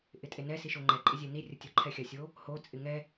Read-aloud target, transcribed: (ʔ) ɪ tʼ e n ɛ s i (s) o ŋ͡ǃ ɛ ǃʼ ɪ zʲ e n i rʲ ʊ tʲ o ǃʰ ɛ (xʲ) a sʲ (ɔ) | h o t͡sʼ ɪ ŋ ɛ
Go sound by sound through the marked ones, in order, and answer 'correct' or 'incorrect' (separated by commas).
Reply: correct, incorrect, correct, incorrect